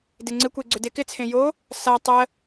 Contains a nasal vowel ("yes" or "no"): yes